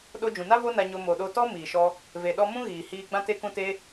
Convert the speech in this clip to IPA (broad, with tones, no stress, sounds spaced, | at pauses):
ɗ o˧ d͡ʒ ũ˨ n a˦ v o˦ n a˧ ɲ o˧ m o˨ ɗ o˧ t ɔ˦ m iː˨ ʃ ɔ˧ | v e˨ ɗ ɔ˧ m ũ˦ ɣ iː˨ h iː˧ ɡ͡b ã˧ t e˧ k ũ˧ t e˧